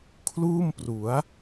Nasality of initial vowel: oral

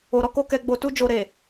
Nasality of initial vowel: oral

